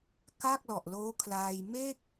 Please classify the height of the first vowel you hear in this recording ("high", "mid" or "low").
low